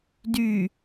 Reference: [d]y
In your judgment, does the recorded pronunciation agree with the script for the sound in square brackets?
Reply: yes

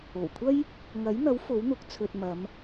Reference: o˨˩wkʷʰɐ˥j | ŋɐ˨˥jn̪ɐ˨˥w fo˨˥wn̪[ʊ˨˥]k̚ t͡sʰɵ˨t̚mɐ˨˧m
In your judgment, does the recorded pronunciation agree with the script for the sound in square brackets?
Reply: yes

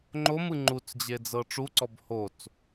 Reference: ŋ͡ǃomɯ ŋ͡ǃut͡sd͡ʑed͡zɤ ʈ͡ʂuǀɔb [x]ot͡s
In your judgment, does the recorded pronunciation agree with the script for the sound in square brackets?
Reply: no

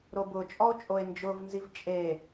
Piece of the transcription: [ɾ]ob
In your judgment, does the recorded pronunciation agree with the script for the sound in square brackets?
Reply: yes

